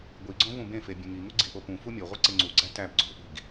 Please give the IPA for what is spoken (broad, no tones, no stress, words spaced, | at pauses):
ɡʷiɡ͡ǀõ vũbẽfe bʲẽŋiŋu ɡ͡ǀiʔopũfu mʲoʁʷi ǀeŋ͡ǀuɡ͡ǀæ tæb ɡ͡ǀo̤ʔi̤ɡ